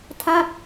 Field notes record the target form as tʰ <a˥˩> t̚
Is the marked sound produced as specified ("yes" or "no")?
yes